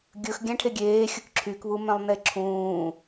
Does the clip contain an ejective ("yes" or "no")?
no